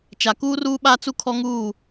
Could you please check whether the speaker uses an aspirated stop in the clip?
yes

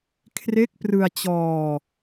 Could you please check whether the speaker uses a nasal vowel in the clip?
no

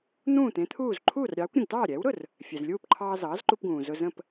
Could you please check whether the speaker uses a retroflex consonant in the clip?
no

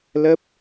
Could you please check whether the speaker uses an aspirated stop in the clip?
no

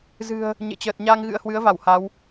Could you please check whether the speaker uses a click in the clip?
no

